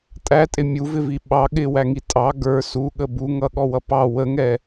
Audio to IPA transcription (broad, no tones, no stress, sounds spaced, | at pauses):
tʼ æ tʼ ɪ mʲ u v ɪ v i ɓ ɑ ɠ ɪ w æ ŋ i tʼ ɑ ɡ ə˞ s u ɠ ə b u ŋ ʌ ɠ ɔ w ʌ p ɑ w ə ŋ ɛ